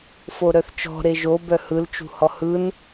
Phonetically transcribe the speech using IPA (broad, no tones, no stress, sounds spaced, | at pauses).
f o ɾ œ θ t͡ʃ ɔ̤ ɾ e ʒ o b œ h ɯ l t͡ʃ ṳ h ɔ h ɯ n